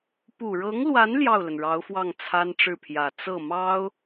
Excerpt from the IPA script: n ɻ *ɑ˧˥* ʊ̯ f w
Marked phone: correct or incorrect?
correct